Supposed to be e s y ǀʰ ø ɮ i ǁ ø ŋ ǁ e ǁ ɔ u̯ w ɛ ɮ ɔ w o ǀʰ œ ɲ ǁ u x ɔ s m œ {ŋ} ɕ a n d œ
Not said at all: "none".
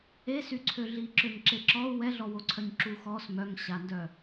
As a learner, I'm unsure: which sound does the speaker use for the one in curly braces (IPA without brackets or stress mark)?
ŋ